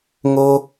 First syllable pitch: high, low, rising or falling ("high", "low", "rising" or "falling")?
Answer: high